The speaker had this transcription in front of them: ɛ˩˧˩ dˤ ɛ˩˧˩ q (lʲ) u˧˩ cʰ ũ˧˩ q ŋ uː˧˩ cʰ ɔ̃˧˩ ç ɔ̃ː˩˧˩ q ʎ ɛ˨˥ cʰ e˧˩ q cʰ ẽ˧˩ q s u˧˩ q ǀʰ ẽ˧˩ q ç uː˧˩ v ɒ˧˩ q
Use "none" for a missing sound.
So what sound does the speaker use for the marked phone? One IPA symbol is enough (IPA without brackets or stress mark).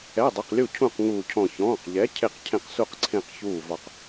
lʲ